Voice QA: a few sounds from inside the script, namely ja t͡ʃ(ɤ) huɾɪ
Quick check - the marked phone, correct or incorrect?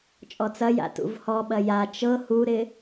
correct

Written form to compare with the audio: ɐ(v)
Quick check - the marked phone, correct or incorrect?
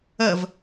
correct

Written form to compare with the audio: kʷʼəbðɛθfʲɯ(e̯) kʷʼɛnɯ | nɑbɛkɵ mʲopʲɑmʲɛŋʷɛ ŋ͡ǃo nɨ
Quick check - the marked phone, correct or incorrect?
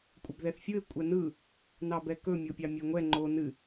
correct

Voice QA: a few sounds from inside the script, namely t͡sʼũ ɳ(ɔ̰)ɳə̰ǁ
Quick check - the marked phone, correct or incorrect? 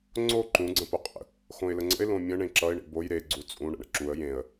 incorrect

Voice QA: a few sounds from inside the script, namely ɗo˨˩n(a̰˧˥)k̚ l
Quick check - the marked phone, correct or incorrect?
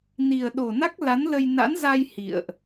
incorrect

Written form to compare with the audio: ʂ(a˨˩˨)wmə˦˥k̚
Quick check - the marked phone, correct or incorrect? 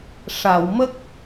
correct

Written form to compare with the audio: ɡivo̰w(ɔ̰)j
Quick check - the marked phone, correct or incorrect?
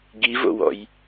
correct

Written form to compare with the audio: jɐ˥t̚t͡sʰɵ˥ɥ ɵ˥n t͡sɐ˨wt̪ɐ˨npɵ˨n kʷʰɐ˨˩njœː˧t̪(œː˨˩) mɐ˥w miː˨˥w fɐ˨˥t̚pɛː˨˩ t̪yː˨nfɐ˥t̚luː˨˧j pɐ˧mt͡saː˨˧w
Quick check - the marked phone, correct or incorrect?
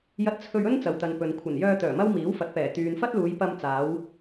correct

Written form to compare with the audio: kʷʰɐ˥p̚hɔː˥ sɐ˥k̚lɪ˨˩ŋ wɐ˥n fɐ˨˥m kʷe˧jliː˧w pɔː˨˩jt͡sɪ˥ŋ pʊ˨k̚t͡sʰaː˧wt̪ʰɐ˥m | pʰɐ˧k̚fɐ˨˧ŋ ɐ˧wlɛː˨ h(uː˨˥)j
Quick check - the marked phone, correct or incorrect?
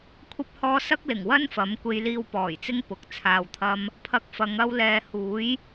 correct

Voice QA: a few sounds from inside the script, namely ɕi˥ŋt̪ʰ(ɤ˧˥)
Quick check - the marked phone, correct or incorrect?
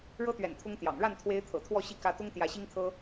incorrect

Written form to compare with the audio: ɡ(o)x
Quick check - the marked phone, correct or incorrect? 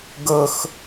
incorrect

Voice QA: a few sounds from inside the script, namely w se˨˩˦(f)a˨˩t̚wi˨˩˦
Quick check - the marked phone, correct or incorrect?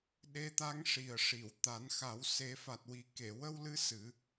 correct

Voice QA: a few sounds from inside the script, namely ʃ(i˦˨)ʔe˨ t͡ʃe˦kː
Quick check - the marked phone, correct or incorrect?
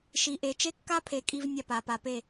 incorrect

